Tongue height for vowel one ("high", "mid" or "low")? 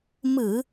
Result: high